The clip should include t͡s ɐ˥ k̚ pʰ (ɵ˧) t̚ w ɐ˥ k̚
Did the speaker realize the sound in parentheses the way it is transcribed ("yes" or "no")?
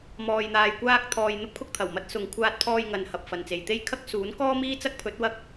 no